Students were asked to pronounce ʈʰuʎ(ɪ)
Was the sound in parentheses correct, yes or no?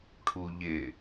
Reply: yes